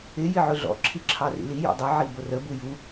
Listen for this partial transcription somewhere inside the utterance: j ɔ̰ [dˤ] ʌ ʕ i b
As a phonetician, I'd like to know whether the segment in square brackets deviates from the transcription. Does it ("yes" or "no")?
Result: no